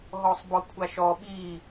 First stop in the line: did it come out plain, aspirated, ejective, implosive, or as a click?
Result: plain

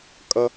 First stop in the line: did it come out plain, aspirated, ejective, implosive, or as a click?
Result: ejective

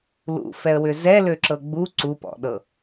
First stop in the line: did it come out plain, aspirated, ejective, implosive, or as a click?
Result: click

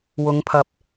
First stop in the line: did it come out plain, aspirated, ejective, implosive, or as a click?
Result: aspirated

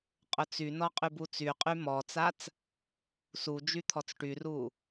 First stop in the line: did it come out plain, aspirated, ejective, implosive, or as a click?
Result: ejective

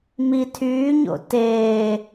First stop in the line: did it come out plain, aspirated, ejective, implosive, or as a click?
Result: aspirated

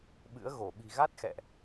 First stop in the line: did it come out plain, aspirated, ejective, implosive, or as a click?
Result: implosive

